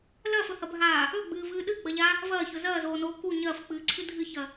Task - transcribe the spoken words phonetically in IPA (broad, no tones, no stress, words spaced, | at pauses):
lɐːfɵhɐbʱaː | ɵɡ͡bɨːvɨː ɗɨɡ͡bɐʎa | vɐːçɵ zɐːzoːnoː ku ɲɐːfk͡pɨːǀʰɨ dʱɨçɐ